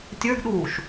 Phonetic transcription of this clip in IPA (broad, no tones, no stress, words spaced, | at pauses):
tʲə˞ɡɗuːʃ